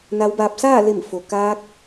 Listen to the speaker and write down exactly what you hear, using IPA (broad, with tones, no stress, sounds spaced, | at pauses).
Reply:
n a˧˥ w b aː˧ p̚ s aː˥˨ l e˧˩ m f o˩ k aː˧ k̚